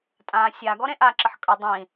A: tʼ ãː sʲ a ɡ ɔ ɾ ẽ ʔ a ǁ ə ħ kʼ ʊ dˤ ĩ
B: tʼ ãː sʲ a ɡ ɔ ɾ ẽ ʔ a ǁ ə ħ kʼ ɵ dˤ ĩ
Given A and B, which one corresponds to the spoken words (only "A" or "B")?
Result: B